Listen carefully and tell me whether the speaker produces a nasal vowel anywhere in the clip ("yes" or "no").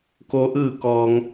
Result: no